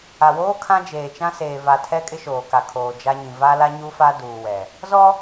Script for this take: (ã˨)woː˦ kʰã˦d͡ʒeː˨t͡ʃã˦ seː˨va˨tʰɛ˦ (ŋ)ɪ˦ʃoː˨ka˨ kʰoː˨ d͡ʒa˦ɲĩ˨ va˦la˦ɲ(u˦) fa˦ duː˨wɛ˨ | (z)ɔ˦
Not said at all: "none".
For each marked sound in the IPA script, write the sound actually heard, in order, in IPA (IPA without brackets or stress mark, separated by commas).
a˨, kʼ, u˦, z